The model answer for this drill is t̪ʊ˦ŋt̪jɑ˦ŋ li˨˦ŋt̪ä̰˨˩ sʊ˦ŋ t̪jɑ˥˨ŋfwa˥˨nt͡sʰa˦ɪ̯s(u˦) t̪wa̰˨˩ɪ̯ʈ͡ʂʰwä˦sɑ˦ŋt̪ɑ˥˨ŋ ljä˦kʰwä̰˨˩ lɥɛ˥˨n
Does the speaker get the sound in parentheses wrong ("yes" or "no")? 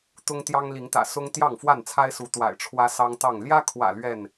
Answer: yes